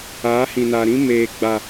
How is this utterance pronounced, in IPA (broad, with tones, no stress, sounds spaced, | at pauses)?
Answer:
aː˨˦ h ĩ˨ n a˨ ɾ ĩ˦ m eː˨ ɡ͡b a˨